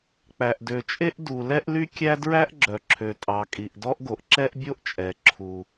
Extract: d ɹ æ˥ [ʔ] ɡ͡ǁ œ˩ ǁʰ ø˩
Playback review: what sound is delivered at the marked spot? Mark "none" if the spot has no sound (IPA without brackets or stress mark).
ʔ